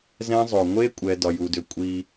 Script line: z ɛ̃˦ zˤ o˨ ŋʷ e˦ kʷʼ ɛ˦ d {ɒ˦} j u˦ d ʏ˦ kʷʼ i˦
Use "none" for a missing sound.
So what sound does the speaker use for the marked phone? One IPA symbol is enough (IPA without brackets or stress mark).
ɒ˦